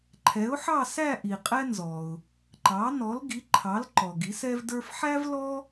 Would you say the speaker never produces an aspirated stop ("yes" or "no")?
no